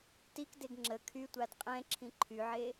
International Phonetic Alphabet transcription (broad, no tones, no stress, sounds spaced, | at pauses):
t i k d e ɡ ŋ͡ǁ ə kʰ y tʷ a d qʼ ɛ̃ ǁʰ ĩ ǃʰ y ʕ e